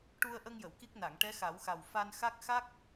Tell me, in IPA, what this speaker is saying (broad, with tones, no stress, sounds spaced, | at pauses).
ʈ u˧ ə̯ ʔ ə˧ ŋ j ə˨˩˨ w k i˦˥ k̚ n a˨˩˨ ŋ ʈ ɛ˧˥ x a˨˩˦ w x a˨˩ w f a˧ n x a˦˥ k̚ x a˦˥ k̚